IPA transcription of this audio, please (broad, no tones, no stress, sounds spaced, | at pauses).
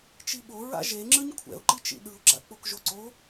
t͡ʃ i ɓ o ɹ a̰ ʒ e ŋ͡ǁ ɯ ɲ kʷʰ ɛ̰ ʊ̯ ǃ i t͡ʃ ḭ ɗ ɯ ʊ̯ ɡ͡ǁ a̰ k͡p o k ʒ o ǀ o